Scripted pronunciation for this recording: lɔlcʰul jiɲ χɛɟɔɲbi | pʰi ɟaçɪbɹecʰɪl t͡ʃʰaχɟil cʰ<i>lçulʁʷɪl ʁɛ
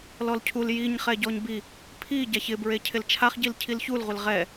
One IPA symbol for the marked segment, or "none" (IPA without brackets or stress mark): i